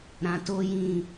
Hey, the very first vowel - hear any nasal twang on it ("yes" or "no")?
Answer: yes